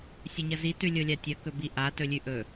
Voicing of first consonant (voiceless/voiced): voiceless